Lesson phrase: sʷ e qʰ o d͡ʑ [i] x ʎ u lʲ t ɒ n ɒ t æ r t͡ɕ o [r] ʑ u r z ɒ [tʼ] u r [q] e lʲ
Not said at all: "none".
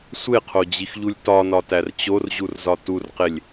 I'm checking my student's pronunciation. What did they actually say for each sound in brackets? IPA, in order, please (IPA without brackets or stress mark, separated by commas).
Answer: i, r, t, q